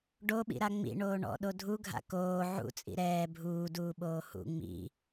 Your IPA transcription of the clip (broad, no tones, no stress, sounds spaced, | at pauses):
ɖ o ɓ ḭ ɾ a ŋ͡m ḭ ɳ oː ɳ ɔ̰ ɗ o dʱ u ɡʱ a̰ k oː ʕ ṵ t͡sʼ ḭ ɾ ɛː bʱ uː d uː ɓ oː h ṵ ŋ͡m ḭ